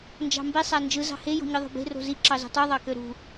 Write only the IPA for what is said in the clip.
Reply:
nd͡ʒɑ̤mbi sˤænd͡ʒɯ zɑ̤he jo̤ɲɯðˤo̤be̤ ro̤zi ǁɑzo̤tˤu ðˤɑkøɾṳ

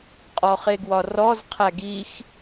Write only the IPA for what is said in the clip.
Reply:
qʼɔχeɡwɒrɔz qʰæɡix

